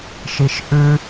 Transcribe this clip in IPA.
ʃiʃʔʉ

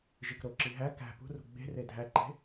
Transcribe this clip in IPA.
ʒikɾoǁi ɦæ kæ̤ pṳrṳ ɡ͡be̤re dʱæǃe̤

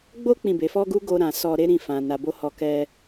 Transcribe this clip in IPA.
ɡ͡bo˦ k͡pĩ˦˨be˨˦ fɔ˦ɡu˦ ɡo˧ɾã˨ sɔ˧ɾe˦ɾĩ˦˨ fã˧na˧bo˦ hɔ˧kɛ˦

